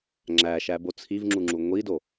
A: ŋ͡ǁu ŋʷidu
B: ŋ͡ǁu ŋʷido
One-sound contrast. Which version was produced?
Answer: B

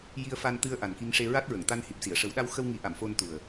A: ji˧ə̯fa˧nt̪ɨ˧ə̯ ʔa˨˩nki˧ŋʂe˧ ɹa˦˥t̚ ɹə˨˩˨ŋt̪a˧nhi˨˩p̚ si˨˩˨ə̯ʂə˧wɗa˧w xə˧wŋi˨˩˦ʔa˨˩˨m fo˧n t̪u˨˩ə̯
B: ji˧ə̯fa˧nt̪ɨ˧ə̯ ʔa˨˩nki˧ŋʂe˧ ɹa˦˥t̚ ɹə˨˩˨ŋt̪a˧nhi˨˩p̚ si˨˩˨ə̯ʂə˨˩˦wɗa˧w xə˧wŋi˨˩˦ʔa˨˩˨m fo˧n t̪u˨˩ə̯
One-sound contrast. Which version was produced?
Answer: B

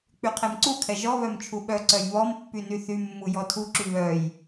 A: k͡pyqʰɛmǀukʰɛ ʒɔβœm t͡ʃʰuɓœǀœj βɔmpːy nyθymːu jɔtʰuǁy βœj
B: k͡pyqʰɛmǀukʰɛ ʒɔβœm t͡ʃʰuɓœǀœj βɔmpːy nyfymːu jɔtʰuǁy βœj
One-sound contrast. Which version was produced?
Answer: A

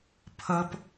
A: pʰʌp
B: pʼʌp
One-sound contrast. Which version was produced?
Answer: A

